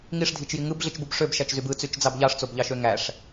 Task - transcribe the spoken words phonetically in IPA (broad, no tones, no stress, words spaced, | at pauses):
ŋiʂdʱit͡ʃji ŋɯbɮit͡ʃbub ʂøbʃæt͡ʃzyb ɯt͡syt͡ʃd͡zɑb ʎɑʂt͡sobʎɑʃø ŋæʂ